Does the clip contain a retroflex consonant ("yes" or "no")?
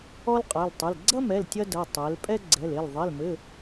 no